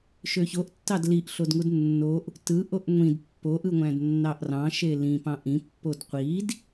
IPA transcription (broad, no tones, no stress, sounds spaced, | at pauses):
ʃ ø ç o ʔ tː ɑ d l i ʔ ɬ o d ŋ u d nː o ʔ | t ɯ ʔ o ʔ ŋʷ ĩ d pː o ʔ ɯ ŋʷ æ̃ d nː ɑ ʔ r ɑ̃ ʃ e l ĩ p ɑ̃ ʔ ĩ pː o d qʷ i d